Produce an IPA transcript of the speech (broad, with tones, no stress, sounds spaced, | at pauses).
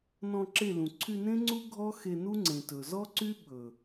n ɔ̃˧ ǁ e˦˨ l ũ˨ ǀʰ y˧ n ẽ˦ ŋ͡ǀ u˦ ɡʱ ɔ˦ x e˧ n u˦ ŋ͡ǀ ẽ˨ t ɵ˨ z ɔ˦ ǀ y˦ ɓ ɵ˨